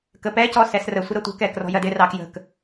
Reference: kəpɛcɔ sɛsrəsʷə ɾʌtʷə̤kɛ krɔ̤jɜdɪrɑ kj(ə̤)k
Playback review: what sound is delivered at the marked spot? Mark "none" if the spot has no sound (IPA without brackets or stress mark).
ə̤